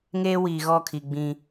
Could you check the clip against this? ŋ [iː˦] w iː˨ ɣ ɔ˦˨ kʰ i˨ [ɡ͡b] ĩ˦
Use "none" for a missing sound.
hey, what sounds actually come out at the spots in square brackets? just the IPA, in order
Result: eː˦, ɡ͡b

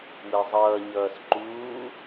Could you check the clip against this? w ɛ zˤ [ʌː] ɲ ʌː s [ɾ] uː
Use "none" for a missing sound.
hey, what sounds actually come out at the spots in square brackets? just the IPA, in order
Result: ʌː, ǃ

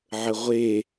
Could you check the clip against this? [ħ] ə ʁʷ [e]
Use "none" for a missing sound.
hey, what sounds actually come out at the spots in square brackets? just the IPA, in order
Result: ʕ, e

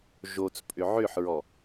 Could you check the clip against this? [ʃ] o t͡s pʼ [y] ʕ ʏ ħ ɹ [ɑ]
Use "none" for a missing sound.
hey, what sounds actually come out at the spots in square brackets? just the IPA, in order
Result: ʒ, ʏ, ɔ

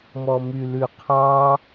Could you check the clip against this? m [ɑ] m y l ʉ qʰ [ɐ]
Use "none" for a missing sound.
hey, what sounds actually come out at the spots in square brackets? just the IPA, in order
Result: ɔ, ɑ

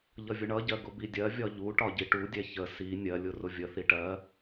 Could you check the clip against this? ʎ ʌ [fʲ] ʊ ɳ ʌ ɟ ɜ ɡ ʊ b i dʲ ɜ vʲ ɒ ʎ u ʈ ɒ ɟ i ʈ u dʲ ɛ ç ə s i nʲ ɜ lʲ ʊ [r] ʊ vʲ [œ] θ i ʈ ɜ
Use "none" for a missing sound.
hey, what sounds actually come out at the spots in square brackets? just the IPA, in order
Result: vʲ, r, ə

